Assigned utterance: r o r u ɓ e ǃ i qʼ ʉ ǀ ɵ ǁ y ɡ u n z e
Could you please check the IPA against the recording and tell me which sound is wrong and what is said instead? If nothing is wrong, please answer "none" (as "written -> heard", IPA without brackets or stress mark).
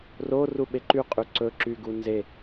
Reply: i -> y